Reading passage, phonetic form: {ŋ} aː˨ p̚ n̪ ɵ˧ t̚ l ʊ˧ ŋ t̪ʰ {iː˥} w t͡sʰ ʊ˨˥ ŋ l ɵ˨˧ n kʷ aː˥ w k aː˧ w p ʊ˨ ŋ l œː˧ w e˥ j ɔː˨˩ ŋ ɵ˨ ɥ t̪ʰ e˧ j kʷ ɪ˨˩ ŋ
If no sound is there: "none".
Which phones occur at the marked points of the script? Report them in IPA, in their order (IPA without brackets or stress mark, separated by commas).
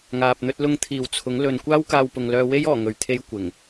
ŋ, iː˨